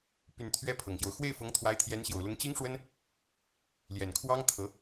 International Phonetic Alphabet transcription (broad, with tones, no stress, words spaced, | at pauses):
py˨˩n t̪ʰɥɛ˥pʰɤ˨˩ŋɕjo˦ʊ̯ xwe˥˩ɪ̯fɤ˧˥ŋt̪ʰwa˧˥ɪ̯t̪ʰjɛ˧˥n ɕjo˨˩ʊ̯lʊ˧˥ŋ t͡ɕi˥ŋʂwə˥n | ljɛ˨˩nkʰwɑ˥ŋt̪ʰɤ˧˥